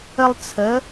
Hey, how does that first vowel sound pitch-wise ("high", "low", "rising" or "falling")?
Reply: high